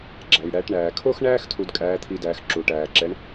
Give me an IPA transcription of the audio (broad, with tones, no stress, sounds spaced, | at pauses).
ɡ͡ǁ æ˩ j ɽ æ˩˧ ʈ ɳ æː˩ kʰ o˥ x ɳ æː˥ x tʰ u˧ d kʼ æː˧˥ t̪ʰ i˧ d æː˩˧ x ǁ u˩ ʈ æː˩ ǁ ɛ˩˧ ɳ